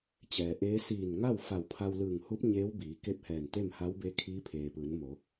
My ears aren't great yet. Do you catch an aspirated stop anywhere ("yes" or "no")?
yes